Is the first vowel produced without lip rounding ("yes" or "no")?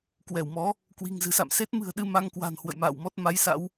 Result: yes